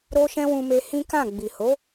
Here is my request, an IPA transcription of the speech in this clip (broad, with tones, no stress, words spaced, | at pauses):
ɾo˧ʃɛ̃˧ wũ˧me˧ hĩ˦kã˦˨ ɡ͡bi˨ho˨˦